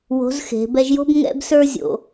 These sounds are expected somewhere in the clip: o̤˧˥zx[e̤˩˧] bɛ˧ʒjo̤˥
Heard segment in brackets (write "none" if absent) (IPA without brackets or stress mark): e̤˩˧